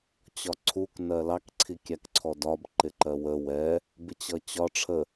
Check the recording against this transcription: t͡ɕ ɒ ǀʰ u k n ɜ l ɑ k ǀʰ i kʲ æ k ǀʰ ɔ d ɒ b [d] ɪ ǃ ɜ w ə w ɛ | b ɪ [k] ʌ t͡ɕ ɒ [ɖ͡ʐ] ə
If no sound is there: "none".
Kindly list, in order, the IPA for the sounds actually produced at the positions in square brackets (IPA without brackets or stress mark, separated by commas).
ǃ, t͡ɕ, ʈ͡ʂʰ